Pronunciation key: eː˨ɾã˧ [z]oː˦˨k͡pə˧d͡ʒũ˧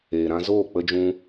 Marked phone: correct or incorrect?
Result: correct